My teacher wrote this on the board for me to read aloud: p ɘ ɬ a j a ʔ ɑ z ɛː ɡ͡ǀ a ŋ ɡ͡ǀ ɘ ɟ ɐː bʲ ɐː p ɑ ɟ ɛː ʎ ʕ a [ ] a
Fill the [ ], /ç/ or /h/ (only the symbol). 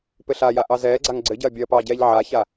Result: ç